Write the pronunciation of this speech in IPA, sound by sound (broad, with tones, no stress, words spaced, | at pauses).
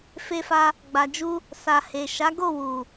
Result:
fe˧fa˧ | ɡ͡ba˨d͡ʒu˧ | sa˨he˨ ʃa˨˦ɡo˦˨ wu˨